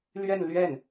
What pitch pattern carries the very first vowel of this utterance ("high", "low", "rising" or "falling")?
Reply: falling